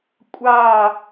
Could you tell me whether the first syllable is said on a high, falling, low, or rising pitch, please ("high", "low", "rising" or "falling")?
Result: falling